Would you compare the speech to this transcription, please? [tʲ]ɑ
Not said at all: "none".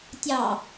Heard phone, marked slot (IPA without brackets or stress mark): tʲ